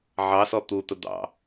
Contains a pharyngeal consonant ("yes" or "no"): yes